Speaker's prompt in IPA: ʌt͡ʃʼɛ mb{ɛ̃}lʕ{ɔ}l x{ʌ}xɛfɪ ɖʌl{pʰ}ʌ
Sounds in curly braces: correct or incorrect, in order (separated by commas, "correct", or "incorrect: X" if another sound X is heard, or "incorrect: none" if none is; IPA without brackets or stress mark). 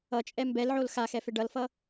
incorrect: ɛ, incorrect: o, incorrect: a, incorrect: f